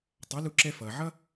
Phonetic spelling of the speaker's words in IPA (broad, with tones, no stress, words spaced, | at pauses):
tˤa˩˥lu˧ǁɛ˧ fʌː˩ ʕʌ˥